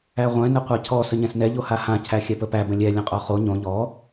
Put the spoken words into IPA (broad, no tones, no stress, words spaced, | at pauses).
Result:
æʁʷɛ̃ nəqʷacʰɔ səɲɛ̃snɛ ʎohahã cʰæxʲɛpəpæ bə̃lʲɛ lʲə̃qʼɔχo ɲõ ʎɔ